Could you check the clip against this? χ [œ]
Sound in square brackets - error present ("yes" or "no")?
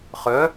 no